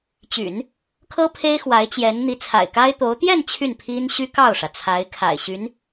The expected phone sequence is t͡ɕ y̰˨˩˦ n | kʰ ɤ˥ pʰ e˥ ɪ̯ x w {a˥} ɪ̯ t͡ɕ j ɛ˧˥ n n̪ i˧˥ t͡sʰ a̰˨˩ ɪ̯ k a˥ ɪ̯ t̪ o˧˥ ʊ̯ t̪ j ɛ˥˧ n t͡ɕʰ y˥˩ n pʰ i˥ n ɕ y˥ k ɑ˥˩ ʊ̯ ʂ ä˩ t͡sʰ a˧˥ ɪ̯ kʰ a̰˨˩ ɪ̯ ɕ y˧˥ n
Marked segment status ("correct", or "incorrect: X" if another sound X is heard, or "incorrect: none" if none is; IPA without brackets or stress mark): incorrect: a˧˥